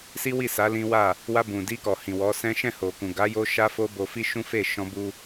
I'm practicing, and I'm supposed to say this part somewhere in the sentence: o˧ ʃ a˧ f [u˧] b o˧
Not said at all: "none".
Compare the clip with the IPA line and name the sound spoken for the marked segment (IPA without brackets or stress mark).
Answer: o˧